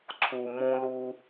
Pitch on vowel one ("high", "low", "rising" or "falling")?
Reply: low